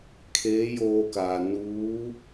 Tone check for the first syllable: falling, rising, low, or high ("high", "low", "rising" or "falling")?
rising